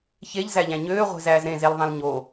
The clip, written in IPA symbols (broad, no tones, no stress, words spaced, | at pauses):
çeʎzæʎæ̃ ɲøːʁʷe̤zæːz ɾẽzelðˤẽl ɲo